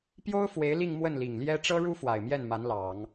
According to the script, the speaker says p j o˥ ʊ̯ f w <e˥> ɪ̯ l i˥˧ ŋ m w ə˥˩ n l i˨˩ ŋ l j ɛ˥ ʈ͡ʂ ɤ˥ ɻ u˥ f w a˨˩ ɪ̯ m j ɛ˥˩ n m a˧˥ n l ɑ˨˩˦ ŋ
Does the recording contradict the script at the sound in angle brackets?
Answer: yes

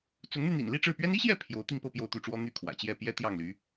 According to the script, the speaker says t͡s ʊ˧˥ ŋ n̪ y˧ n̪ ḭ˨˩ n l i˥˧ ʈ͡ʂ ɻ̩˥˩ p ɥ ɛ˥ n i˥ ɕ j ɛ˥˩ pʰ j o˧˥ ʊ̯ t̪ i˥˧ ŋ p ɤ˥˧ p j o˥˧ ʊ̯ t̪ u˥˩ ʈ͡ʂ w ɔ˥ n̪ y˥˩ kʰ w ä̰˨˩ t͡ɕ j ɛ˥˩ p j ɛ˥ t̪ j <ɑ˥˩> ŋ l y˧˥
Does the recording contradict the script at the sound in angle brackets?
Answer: no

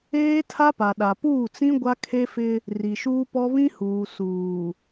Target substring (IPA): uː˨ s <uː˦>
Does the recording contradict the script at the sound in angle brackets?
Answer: yes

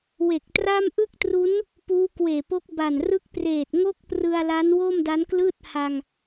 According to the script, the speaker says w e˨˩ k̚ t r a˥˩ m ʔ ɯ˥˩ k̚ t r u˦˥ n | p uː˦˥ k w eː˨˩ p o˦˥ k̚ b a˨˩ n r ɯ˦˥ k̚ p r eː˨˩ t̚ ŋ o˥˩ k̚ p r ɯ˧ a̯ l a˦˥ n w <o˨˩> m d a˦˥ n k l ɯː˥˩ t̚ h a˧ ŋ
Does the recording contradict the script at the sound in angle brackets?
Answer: yes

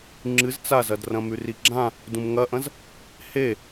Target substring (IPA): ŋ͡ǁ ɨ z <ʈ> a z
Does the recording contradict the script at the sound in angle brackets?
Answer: yes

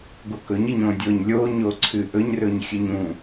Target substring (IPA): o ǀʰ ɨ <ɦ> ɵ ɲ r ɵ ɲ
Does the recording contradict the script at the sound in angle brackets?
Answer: yes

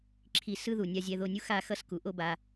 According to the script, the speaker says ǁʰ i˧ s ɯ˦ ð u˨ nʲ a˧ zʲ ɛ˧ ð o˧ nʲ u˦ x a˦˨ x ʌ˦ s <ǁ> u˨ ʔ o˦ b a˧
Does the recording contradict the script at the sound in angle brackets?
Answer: yes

